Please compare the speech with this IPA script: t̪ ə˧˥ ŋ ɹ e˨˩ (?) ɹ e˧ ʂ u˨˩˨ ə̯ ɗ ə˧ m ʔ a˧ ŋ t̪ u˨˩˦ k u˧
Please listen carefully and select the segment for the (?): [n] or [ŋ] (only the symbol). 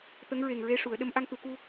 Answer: ŋ